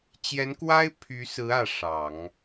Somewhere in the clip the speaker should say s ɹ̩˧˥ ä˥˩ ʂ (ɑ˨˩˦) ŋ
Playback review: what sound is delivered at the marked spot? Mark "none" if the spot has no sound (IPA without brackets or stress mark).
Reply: ɑ˨˩˦